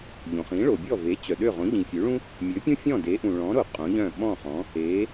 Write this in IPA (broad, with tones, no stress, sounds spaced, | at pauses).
ʎ õ˩ χ ĩ˩˥ ɭ o˩ bʲ ɔ˥˩ v e˩˥ t͡ɕ œ˩ ɗ ø˥˩ ʁ õ˩˥ ʎ ĩ˩ fʲ ø˩˥ ɭ ũ˥ | mʲ ø˩˥ pʲ ũ˥ fʲ ɔ̃˥˩ d e˩˥ ʔ ũ˩ ɭ ɔ̃˩˥ ɾ o˩ qʼ õ˩˥ ʎ œ̃˥˩ ɓ ɔ̃˥˩ χ ɔ̃˩˥ | e˩˥